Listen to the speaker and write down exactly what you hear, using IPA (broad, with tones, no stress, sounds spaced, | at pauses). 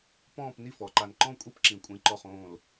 p ɔ̃ː˥˧ p n i˥˧ f ɔ˩˧˩ ǃ a˧˩ n ǃ ɔ̃˥˧ kʷʼ i˥˧ p ǁ ĩ˨˩˦ kʷʼ ĩ˩˧˩ ǃ ɔ˧˩ χ õː˧˩ l